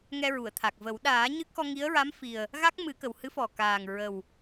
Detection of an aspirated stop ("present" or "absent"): present